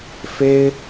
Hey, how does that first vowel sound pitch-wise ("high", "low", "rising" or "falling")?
high